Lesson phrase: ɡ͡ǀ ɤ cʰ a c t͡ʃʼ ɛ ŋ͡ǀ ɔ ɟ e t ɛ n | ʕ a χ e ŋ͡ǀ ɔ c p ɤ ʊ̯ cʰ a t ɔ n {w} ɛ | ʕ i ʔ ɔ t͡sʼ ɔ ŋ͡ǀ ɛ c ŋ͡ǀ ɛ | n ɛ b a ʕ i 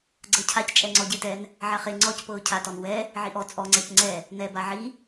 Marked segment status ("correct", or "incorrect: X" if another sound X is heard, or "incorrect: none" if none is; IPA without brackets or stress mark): correct